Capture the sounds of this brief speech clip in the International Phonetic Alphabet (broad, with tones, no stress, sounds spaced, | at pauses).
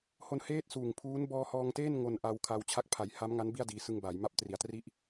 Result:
h o˧ n h eː˥˩ t̚ s uː˨˩ ŋ pʰ uː˦˥ n b ɔː˧ h ɔː˧ ŋ t eː˥˩ n ŋ o˧ n ʔ a˧ w kʰ a˧ w t͡ɕʰ a˦˥ k̚ pʰ a˨˩ j h a˦˥ m ŋ a˦˥ n b i˥˩ a̯ d iː˧ s ɯ˧ ŋ b aː˩˦ j m a˦˥ p̚ t r i˩˦ a̯ t r i˥˩ ʔ